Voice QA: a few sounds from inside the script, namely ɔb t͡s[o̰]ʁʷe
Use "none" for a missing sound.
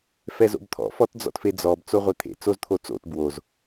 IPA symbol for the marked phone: o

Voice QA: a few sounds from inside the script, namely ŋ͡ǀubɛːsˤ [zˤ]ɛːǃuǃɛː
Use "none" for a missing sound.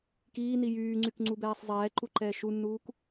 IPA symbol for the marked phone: zˤ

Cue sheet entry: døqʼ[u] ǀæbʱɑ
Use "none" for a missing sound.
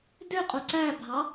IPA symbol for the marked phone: u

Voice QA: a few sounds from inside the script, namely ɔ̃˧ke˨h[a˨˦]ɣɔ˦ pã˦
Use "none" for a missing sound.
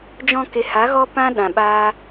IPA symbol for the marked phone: a˨˦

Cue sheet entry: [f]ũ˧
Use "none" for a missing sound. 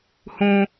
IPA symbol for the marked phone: h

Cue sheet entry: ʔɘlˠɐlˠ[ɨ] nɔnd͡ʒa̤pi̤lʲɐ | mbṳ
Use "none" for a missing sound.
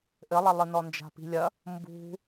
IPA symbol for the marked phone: ɨ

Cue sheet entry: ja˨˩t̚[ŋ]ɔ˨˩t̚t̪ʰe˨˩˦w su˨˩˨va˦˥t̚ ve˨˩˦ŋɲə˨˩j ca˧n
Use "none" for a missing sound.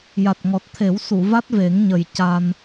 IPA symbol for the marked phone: ŋ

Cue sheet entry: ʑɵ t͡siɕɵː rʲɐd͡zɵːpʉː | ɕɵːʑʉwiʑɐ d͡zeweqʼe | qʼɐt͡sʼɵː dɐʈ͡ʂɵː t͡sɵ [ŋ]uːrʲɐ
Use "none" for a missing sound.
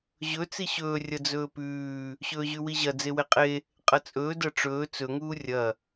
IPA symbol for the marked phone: ŋ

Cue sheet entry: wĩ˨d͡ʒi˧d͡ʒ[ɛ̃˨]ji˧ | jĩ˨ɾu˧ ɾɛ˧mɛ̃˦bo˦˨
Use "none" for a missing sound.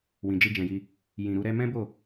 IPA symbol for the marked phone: ɛ̃˨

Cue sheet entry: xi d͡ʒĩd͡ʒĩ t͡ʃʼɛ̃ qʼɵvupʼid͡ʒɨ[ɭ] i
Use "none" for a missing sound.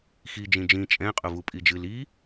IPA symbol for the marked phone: l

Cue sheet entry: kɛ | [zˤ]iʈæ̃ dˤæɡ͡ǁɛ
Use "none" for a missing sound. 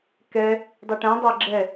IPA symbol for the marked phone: dˤ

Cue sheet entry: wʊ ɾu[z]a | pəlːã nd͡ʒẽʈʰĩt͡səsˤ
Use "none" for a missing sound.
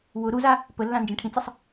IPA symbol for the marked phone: z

